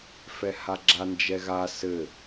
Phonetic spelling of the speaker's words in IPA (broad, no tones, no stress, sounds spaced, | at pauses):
f ɛ h a ɡ͡ǁ a n d͡ʒ ɛ ɣ a s ɘ